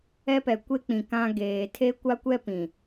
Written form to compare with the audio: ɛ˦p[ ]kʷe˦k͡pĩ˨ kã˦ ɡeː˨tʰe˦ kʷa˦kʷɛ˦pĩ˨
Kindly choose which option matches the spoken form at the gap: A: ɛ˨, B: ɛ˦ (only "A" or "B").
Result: A